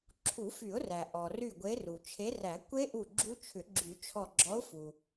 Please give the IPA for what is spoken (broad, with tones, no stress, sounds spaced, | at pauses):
ǁʰ u˨˩˦ f y˨˩˦ ʊ̯ r æ˩ ʔ ɔ˩ r y˧˩ ɡʷ e˨˦ r u˩ t͡ʃʰ e˨˦ r æ˨˩˦ kʷ e˦˥ ʔ u˧˩ ɡ͡ǁ u˦˥ t͡ʃʰ ʏ˨˩˦ ɡ͡ǁ y˨˩˦ t͡ʃʰ ɔ˧˩ ɡ͡ǁ ɔ˨˦ ʊ̯ f u˩